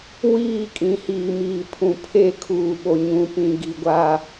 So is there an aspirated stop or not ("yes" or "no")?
yes